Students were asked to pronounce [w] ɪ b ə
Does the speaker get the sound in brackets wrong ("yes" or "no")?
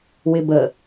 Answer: no